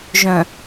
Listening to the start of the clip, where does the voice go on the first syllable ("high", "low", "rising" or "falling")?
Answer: low